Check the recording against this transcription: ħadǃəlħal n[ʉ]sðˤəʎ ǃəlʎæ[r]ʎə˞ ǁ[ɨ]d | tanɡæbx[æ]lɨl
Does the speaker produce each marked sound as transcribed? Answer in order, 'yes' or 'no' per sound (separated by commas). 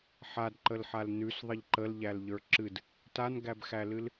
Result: yes, no, yes, yes